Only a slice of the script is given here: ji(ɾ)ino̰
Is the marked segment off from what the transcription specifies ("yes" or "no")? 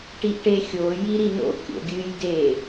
no